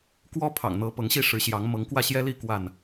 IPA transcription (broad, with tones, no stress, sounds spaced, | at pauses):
k w ɔ˦ pʰ ɑ̰˨˩ ŋ n̪ ɤ˨˦ p ɤ˨˦ ŋ ɕ i˥˨ ʂ ɻ̩˨˦ ɕ j ɑ˨˦ ŋ m ɤ˨˦ ŋ k w ä˥˨ ɕ j ɛ˦ l i˥˨ k w a˥˨ n